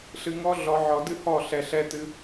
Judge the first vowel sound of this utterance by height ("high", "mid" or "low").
high